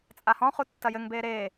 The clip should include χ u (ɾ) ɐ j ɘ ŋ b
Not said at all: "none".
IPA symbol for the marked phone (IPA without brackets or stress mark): tː